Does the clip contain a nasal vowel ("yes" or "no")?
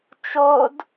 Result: no